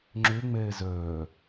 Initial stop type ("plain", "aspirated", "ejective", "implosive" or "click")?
click